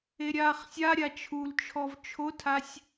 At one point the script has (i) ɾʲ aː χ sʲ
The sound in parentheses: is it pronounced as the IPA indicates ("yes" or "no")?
no